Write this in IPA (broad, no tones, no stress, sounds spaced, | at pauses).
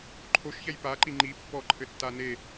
ǃʰ o ʃ ç ɛ j p a ǃ i ŋ͡ǃ i pː ɔ ǃʰ ɘ tː a n e